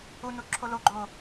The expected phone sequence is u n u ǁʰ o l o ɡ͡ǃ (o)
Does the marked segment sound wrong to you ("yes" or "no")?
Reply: no